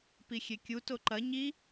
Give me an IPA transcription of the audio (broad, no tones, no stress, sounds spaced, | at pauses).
p i xʲ e kʲ u t o ǃ ɐ ɲ i